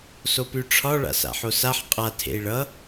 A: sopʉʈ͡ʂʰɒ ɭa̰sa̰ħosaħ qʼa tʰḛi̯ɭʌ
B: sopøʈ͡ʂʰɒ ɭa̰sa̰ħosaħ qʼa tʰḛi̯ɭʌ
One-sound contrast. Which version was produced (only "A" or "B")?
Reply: A